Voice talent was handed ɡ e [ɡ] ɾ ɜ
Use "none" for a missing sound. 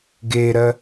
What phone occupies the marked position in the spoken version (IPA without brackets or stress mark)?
none